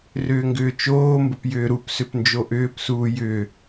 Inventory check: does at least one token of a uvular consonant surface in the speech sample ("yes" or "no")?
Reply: no